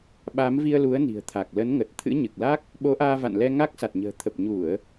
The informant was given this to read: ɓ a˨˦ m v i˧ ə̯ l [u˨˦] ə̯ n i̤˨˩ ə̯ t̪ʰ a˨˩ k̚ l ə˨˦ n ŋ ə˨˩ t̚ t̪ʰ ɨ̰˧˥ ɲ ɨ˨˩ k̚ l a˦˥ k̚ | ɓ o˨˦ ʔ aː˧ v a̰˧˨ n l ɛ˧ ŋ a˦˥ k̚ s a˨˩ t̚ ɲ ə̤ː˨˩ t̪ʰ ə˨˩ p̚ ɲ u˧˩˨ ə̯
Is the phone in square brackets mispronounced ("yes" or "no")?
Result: no